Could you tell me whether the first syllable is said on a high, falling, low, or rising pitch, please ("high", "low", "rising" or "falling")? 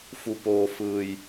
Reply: low